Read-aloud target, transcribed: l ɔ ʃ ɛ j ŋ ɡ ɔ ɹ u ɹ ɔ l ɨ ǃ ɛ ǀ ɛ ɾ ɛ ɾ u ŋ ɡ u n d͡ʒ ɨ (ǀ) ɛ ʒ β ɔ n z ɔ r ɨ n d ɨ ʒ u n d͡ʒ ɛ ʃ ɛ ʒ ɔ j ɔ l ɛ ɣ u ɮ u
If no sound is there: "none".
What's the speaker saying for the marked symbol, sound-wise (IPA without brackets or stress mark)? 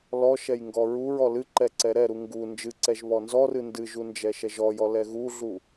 ǀ